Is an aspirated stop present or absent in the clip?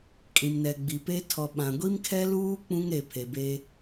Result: present